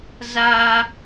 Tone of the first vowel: high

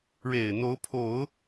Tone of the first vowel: low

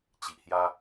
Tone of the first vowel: low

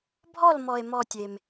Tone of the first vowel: falling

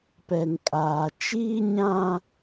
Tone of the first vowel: low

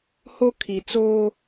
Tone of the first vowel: high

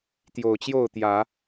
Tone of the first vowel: low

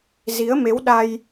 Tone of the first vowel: rising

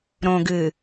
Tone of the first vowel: low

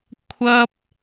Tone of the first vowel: high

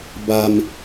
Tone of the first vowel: low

